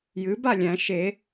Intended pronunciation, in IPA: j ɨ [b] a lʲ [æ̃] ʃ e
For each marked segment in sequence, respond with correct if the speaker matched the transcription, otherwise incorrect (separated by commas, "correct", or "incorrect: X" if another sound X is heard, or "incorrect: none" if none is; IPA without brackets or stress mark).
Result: correct, correct